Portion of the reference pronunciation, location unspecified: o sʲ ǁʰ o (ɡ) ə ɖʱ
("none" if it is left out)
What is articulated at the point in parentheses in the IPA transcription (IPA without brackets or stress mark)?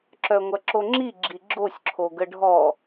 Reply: ɡ